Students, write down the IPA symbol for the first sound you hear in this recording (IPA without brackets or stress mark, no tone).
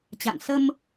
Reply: t͡ɕ